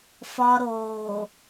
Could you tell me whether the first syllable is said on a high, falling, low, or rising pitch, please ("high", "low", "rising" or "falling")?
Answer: high